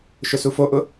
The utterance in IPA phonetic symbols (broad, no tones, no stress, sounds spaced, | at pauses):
ʃ ʊ s u f o ʔ ʊ